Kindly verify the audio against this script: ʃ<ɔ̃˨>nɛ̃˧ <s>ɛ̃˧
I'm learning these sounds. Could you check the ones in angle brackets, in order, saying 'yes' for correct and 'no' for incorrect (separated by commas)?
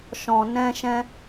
yes, no